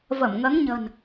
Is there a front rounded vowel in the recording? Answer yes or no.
no